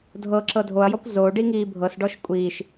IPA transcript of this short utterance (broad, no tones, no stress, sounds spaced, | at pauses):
dʱ ɤ ǁ ɤ dʱ o ɐ̯ j ɔ kʷ z o ɖ i ŋ iː bʱ ɤ s ɖ ɔ ʃ kʷʼ iː ʃ